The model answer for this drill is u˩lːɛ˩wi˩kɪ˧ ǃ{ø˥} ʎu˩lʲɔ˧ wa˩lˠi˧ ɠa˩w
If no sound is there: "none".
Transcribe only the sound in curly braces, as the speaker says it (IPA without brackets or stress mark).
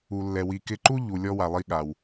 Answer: u˥